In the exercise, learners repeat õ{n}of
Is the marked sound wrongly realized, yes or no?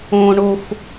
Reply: yes